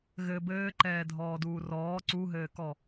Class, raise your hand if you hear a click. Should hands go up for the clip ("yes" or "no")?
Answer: yes